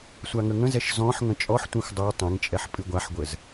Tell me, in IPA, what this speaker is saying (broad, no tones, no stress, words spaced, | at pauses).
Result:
sʷaŋəŋə̃zɛʃ zɔ̃ħ ŋə̃t͡ʃʼɔħtʷĩxʷ dˤo tˤɛ̃ŋt͡ʃʼɛħ pʼɨɡʷaħɡʷəz